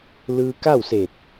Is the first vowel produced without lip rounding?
yes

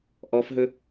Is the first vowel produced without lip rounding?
no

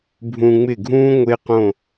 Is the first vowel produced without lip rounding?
no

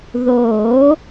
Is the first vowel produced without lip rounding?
no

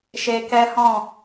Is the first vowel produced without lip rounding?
yes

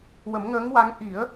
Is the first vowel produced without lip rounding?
yes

